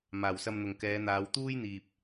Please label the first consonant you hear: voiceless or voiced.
voiced